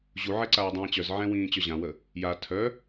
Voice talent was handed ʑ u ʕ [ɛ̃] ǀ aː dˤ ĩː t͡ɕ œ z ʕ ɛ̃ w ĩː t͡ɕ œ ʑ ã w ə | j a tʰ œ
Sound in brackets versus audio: incorrect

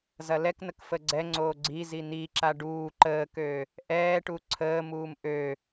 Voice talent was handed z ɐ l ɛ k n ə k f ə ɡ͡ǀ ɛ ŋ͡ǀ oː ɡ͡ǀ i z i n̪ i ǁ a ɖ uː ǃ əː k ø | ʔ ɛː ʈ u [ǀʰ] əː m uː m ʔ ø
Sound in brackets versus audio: correct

